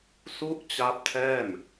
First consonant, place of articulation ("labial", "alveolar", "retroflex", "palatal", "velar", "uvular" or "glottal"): alveolar